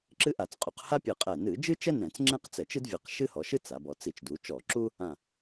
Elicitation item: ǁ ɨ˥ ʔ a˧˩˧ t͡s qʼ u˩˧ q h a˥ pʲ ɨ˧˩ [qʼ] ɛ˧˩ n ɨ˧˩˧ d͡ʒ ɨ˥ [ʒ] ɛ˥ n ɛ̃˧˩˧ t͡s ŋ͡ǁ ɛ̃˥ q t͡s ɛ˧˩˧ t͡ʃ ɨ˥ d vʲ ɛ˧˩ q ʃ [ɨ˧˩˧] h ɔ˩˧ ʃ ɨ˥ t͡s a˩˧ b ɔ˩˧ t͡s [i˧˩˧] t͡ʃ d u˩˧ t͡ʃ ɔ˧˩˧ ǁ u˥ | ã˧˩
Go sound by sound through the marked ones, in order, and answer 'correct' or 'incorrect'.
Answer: correct, incorrect: t͡ʃ, incorrect: ɨ˥, correct

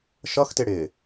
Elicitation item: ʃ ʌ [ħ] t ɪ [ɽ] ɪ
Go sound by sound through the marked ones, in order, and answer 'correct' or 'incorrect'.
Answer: incorrect: x, correct

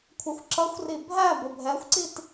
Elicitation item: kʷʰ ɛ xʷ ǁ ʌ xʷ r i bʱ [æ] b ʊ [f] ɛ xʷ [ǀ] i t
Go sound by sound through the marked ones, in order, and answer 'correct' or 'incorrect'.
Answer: correct, incorrect: bʱ, correct

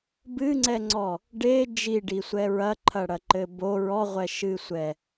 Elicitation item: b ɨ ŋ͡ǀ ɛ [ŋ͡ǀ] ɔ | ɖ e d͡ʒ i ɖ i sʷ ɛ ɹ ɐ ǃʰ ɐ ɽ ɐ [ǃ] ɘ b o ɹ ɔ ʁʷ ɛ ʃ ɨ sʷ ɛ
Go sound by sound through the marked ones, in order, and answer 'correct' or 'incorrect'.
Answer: correct, correct

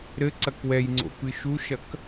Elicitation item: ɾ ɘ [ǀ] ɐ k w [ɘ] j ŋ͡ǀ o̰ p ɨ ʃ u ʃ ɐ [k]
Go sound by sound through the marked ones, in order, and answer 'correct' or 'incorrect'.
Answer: correct, incorrect: ɛ, correct

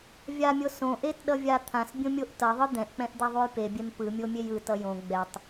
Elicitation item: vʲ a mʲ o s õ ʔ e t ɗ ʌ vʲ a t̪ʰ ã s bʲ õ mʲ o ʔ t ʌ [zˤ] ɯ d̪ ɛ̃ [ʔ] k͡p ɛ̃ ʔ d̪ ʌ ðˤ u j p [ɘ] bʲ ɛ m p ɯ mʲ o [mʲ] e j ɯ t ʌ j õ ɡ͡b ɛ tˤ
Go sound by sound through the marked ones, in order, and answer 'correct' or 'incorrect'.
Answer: incorrect: ðˤ, correct, incorrect: e, correct

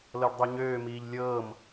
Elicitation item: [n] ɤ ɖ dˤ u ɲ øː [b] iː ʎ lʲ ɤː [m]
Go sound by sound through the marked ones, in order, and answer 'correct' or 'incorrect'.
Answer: incorrect: l, incorrect: m, correct

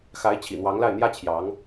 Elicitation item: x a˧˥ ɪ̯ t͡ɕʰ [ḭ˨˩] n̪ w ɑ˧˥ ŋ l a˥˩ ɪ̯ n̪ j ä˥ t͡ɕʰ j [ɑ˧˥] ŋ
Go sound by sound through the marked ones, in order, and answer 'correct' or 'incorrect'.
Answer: correct, correct

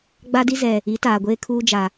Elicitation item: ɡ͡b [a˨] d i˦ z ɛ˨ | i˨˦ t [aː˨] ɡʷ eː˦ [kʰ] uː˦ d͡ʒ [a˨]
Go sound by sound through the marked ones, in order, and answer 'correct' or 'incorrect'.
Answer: incorrect: a˦, correct, correct, correct

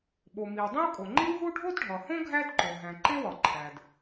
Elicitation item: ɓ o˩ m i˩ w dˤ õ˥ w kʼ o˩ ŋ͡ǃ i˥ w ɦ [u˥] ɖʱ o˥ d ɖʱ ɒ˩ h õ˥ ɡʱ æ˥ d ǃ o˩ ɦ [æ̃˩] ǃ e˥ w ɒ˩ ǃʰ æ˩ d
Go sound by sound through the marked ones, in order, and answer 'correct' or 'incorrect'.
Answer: correct, correct

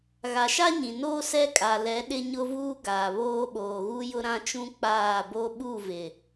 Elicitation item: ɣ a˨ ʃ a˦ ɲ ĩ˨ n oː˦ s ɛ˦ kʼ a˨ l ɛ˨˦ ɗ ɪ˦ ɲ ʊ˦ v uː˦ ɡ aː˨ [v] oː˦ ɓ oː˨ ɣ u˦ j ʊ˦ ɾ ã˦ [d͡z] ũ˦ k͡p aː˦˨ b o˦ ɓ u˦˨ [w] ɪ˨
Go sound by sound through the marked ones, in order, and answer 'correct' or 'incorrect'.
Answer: incorrect: β, incorrect: t͡ʃ, incorrect: v

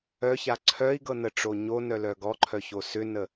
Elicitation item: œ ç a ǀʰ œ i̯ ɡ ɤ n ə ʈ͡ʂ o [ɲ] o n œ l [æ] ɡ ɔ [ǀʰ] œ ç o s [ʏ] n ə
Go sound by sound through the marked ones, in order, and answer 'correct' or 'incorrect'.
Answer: correct, incorrect: œ, incorrect: ǃʰ, correct

